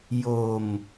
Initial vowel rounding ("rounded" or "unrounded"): rounded